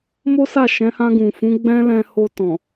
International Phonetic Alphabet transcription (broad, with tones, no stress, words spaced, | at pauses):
mo˦sa˦˨ʃɛ̃˨˦ hã˧ɡũ˨fũ˨˦ɡ͡bɛ̃˦ lɛ̃˧ho˧tɔ̃˨